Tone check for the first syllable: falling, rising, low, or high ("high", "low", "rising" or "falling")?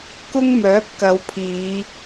high